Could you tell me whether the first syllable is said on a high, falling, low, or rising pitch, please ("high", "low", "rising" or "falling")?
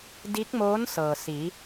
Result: rising